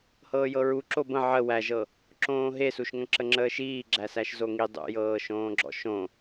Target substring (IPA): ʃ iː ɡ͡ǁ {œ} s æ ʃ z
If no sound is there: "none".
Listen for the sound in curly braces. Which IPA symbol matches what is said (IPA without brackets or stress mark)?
æ